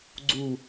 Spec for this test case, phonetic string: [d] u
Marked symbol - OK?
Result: no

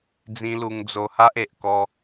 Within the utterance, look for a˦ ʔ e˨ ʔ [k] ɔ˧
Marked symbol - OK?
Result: yes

